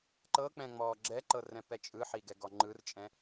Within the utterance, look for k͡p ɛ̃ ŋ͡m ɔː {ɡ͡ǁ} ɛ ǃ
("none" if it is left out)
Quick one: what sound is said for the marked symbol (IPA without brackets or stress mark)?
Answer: ɡ͡ǁ